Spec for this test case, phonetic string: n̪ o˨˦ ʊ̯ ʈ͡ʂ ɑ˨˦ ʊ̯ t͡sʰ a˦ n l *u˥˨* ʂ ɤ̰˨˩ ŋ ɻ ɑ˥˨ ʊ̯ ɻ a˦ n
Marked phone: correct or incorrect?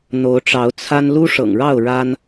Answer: incorrect